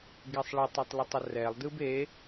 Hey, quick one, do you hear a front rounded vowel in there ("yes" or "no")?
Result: no